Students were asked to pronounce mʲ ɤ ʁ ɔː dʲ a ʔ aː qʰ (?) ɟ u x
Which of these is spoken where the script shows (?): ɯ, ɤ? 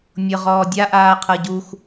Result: ɤ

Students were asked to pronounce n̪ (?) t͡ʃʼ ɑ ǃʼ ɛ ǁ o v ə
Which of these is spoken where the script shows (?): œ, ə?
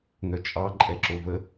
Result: œ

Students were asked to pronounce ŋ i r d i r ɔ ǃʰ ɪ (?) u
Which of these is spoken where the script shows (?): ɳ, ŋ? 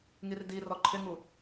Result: ŋ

